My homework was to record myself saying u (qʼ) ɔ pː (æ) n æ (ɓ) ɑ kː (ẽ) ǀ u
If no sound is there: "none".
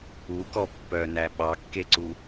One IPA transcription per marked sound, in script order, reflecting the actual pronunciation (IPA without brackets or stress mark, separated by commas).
k, œ, ɓ, e